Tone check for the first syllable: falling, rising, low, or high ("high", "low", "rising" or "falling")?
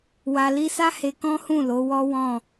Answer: low